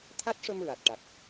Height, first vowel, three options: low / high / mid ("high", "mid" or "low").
low